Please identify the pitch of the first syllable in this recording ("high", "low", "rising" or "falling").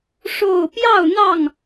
falling